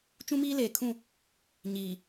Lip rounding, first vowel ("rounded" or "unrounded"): rounded